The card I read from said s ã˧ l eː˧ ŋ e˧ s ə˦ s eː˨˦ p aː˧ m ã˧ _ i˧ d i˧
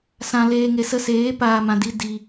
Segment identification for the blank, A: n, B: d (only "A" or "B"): B